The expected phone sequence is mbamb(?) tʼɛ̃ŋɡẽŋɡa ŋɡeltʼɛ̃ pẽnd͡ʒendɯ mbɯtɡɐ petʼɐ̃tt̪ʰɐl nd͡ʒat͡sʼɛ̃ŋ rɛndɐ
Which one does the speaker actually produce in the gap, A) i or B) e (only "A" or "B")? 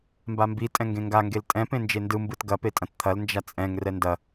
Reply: A